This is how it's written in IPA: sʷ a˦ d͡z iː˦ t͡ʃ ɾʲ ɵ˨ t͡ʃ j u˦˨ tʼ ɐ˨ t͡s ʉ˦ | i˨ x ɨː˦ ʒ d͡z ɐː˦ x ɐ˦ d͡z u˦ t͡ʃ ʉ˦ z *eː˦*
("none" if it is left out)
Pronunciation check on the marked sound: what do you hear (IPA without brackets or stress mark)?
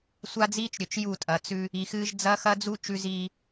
iː˦